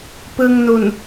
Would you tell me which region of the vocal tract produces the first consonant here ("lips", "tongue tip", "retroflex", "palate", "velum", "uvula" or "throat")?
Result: lips